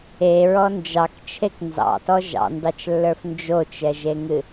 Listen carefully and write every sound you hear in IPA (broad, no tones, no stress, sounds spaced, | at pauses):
e ɹ ɔ n d͡ʒ ɑ k t͡ʃʰ e k n z ɑ̰ t ɔ ʒ ɑ̰ n d ɑ t͡ʃ lː ə˞ f n d͡ʒ o t͡ʃ ɛ ʒ e ŋ ɨ